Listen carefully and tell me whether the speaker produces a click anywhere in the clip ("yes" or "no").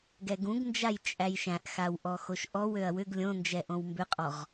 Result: no